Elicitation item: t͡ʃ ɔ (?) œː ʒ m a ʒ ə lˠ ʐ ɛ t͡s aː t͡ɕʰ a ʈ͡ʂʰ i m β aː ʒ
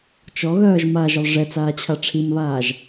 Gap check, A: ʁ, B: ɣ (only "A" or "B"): B